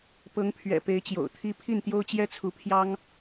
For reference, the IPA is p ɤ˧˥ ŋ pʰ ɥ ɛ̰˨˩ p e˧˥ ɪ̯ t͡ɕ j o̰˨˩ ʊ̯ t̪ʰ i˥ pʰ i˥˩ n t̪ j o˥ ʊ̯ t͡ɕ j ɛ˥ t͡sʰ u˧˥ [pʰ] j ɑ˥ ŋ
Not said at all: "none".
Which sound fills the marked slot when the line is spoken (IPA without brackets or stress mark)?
pʰ